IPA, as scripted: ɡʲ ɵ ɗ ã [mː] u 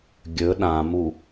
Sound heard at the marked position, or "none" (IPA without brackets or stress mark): m